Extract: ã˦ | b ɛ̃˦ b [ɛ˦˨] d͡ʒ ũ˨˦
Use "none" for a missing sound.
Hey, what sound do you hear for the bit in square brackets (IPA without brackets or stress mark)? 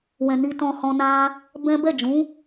ɛ˦˨